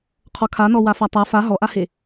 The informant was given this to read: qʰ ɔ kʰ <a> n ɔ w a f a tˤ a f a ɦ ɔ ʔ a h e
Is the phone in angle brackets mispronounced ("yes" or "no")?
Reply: no